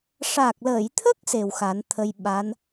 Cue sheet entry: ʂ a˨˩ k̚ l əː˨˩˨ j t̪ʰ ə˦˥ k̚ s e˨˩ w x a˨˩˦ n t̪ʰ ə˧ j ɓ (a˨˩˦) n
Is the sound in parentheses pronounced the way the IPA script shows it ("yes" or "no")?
no